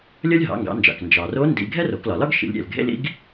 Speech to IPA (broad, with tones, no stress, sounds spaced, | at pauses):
lʲ ʌ˥ lʲ ɦ ɑ̰˩˧ ŋ ɡ ɑ̰˩˧ n d͡ʒ ɑ̰˩ k n d͡ʒ ɑ˩ r o˧˥ n d ḭ˧ ɡʱ ɛ˥ r o˩˧ k l ɒ˩ l ɒ˥ ɡ ʃ ḭ˩˧ lʲ ɾʲ ɛ̰˩ l ɡʱ ḛ˥ l ḭ˧˥ ɡ